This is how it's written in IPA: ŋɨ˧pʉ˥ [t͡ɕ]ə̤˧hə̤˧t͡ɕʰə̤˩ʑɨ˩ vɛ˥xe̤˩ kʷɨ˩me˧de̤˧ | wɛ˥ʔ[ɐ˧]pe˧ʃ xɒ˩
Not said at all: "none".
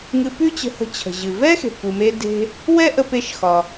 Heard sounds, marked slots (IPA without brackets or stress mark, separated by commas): t͡ɕ, ə˧